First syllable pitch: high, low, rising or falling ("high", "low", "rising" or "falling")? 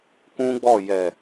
high